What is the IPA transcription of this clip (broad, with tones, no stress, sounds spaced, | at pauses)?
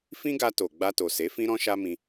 f ĩ˦ ɡ a˧ t o˨ ɡ͡b a˧ t o˨ s e˨˦ f ĩ˦ ɾ ɔ̃˦ ʃ a˦ m ĩ˧